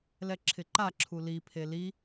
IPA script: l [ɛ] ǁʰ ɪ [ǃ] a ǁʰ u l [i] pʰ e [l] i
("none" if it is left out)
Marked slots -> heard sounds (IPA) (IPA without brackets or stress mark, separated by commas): ɛ, ǃ, i, l